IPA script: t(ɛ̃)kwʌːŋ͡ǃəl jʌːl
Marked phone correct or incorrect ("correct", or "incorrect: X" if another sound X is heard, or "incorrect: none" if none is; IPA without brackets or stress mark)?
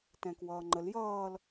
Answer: correct